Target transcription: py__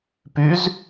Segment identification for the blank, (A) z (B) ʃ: A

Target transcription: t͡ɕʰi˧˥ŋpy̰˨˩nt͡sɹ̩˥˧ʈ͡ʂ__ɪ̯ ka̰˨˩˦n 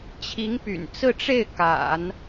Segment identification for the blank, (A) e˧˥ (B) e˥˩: B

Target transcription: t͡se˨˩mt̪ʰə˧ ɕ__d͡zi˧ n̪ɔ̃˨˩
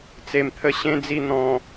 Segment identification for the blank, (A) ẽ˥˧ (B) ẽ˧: B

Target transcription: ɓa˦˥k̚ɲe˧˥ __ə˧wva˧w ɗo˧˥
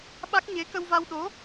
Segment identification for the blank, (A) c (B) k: B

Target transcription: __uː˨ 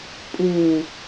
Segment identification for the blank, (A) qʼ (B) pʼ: B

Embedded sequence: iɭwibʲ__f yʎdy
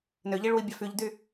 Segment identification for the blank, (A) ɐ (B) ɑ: B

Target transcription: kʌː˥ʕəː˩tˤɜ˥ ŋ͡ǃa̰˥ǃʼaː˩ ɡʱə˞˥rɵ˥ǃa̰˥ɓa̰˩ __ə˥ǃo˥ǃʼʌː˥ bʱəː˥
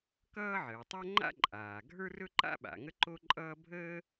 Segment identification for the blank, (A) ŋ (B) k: A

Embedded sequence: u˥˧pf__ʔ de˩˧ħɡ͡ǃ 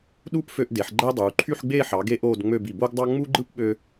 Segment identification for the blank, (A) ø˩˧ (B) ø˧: B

